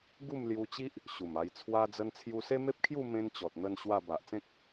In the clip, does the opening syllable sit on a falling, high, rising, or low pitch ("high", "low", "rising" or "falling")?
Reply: falling